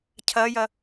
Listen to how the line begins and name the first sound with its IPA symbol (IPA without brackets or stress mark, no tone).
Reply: cʰ